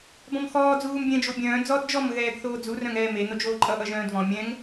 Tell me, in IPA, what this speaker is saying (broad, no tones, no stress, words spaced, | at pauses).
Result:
bɔ̃mxɔː d͡zuːmbʲɛ̃ d͡ʒobʲœ̃ː d͡zɔd d͡ʒɔm ɣɛːɡθoːd͡zur œ̃ŋɛːme nod͡ʒoːǃʼʌ ʔʌʒœ̃ːdvɔ̃ mʲɛ̃ŋ